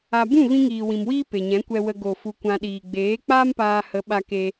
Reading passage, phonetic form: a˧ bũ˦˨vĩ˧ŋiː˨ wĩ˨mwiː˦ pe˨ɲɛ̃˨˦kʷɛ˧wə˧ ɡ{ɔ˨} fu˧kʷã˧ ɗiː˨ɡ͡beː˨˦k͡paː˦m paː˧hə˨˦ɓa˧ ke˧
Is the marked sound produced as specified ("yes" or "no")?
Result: no